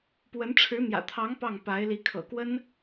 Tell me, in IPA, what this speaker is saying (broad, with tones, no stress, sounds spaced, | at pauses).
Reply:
p w ə˧˥ n ʈ͡ʂʰ ɻ̩˧˥ n̪ j ä̰˨˩ t̪ʰ ɑ˧˥ ŋ p ɑ˥˩ ŋ p a˧˥ ɪ̯ l i˧˥ kʰ ɤ̰˨˩ k w ə˥ n